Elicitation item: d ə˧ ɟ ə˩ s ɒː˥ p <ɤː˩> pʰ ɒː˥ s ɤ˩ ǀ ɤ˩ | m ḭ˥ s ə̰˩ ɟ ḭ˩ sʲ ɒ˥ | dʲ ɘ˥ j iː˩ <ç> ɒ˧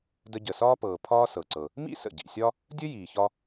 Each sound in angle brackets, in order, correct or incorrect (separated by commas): correct, correct